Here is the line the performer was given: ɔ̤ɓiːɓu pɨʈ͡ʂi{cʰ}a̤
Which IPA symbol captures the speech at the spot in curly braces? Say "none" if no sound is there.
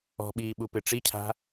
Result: cʰ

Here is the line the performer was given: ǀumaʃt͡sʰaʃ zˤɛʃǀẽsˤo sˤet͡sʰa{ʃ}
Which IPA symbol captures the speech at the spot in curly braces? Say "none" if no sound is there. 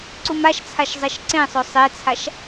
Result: ʃ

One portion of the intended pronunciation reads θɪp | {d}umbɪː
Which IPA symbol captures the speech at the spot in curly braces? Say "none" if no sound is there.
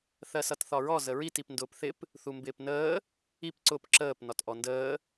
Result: θ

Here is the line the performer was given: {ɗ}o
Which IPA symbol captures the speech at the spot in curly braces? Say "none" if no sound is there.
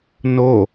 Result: n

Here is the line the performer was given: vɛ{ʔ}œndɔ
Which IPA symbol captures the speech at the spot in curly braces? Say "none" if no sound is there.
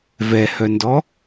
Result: h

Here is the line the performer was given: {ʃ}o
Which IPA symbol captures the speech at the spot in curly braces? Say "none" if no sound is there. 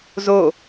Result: z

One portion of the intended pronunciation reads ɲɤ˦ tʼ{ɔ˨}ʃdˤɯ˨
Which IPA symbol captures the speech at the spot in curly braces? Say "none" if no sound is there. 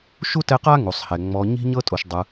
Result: o˨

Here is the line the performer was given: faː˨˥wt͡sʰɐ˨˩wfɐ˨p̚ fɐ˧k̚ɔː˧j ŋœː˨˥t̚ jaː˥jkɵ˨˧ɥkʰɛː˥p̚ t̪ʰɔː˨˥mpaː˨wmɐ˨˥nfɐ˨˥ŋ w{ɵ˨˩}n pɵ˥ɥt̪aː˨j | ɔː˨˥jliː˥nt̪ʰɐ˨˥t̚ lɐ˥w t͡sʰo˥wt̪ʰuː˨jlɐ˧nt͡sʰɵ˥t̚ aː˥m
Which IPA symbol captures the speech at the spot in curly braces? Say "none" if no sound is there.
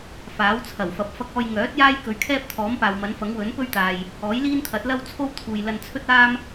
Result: ɵ˨˥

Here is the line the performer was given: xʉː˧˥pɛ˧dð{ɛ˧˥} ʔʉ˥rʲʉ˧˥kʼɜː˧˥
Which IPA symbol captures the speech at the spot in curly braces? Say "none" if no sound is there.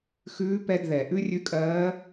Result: ɛ˩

